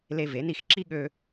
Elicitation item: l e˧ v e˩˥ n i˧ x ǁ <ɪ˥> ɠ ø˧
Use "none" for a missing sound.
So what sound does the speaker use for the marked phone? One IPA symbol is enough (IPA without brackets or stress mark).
i˥